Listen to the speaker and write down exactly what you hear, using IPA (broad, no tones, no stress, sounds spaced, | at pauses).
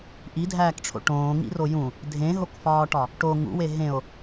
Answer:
ʔ i dʱ æː k ʈ͡ʂʰ o̰ ʈ õː ŋ ḭ r o j ũ | dʱ ẽ ɦ o k f ɒː ʈ ɒ | ʈ o ŋ ṵ w e ɦ ẽ o̯